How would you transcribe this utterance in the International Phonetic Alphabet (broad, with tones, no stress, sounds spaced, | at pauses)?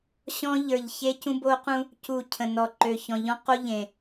ɕ ɔ̃˦ ʎ ə˞˨ ʎ ç e˦ c ũ˦ b o˦ q ũ˦ | c u˨ cʰ ə̃˨ n ɔ˨ ǃ ø˨ ç ɔ̃˨ ʎ ɔ̃˦ q o˦ ʎ ẽ˨